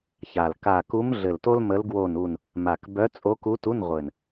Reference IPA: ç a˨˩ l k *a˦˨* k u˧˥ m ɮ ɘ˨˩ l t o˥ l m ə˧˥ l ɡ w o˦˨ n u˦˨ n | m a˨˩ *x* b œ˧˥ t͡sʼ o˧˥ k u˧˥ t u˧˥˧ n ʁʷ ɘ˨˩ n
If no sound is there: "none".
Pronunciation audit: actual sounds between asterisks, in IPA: a˦˨, k

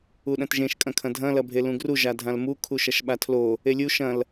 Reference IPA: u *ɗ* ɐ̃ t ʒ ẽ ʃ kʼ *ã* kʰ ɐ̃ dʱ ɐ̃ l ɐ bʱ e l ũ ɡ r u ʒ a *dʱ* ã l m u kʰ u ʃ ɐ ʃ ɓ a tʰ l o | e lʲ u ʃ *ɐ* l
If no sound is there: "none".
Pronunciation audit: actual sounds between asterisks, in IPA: ɗ, ɐ̃, dʱ, ɐ̃

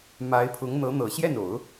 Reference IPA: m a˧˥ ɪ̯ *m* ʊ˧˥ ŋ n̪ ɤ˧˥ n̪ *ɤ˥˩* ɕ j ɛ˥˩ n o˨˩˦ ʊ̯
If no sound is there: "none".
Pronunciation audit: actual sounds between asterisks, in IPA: pʰ, ɤ˨˩

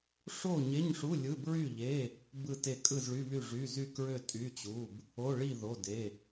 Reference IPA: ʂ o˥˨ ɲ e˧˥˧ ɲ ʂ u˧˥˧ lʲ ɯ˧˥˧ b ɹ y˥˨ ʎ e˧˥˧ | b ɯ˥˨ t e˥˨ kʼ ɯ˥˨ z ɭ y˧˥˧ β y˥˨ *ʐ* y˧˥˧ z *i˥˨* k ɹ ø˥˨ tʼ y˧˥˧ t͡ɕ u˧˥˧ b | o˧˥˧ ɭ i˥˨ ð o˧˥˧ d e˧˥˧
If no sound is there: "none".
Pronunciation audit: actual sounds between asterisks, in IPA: ʐ, y˥˨

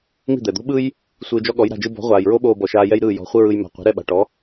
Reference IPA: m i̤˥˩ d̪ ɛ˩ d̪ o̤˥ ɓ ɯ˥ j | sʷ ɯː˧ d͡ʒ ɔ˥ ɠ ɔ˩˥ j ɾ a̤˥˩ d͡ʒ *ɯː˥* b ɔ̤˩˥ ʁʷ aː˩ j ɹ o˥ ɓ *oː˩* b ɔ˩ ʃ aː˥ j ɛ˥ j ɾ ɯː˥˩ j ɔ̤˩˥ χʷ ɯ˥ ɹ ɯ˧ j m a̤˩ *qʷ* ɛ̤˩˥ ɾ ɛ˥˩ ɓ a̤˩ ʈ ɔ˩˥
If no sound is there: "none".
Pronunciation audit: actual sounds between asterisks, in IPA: ɯ˥, oː˥, qʷ

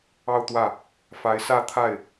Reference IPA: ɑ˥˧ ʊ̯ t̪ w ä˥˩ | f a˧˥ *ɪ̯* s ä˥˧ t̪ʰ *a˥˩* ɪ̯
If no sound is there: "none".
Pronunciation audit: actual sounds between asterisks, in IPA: ɪ̯, a˥˩

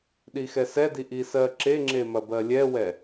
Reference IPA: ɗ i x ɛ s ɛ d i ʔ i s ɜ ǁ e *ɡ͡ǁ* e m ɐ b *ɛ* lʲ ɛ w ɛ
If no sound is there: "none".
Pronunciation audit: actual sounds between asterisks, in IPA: ŋ͡ǁ, ɜ

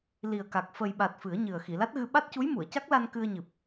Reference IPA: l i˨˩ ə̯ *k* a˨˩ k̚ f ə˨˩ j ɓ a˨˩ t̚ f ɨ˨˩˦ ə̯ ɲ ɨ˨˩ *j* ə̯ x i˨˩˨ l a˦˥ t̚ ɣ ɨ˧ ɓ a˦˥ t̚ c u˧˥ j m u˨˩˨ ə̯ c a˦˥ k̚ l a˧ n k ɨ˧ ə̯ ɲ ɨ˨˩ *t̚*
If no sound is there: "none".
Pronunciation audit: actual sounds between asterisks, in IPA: k, none, p̚

